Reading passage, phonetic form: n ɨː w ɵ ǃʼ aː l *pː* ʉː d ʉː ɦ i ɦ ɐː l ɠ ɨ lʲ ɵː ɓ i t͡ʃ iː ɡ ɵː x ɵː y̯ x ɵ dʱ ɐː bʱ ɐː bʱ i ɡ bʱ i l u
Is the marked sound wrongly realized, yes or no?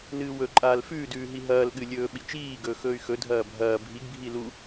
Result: yes